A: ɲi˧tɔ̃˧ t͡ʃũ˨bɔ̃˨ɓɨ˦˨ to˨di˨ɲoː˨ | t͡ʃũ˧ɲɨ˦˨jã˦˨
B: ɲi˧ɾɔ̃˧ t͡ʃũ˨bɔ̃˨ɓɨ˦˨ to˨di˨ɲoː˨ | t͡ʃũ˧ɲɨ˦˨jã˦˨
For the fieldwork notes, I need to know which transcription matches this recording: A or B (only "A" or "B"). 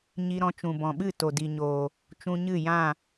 B